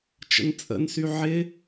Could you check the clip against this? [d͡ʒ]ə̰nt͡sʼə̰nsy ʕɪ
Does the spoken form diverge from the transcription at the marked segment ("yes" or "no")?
yes